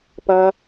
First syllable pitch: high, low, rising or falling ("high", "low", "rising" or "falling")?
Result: high